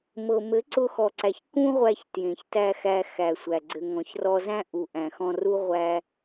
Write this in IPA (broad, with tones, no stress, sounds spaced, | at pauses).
m ɤ˨ m ɘ˨˦ ǀ ʊ˧ x ɔ˨ ǀ æ˨ ç k ũ˦ ʁʷ æ˧ ç t j ẽ˨ ç t æ˧ x æ˧ x æ˨ sʷ æ˨ ɡ͡ǀ ɘ˨ ŋ ɔ̃˨ ç r ɔ˧ z æ̃˦ ʔ u˨ ʔ æ̃˨ x ɔ̃˧ r u˦ ʁʷ æ˧